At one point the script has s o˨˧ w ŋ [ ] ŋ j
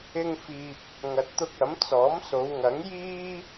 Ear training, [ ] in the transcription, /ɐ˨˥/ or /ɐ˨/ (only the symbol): ɐ˨˥